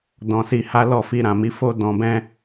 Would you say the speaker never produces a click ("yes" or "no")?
yes